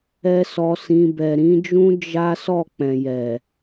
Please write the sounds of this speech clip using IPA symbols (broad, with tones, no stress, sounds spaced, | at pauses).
ɛ˦ s ɔ˧ s ĩ˧ b ɛ˨ ɾ ĩ˨˦ d͡ʒ ũ˦ d͡ʒ a˦ s ɔ˦˨ k͡p ɛ̃˨ j ɛ˨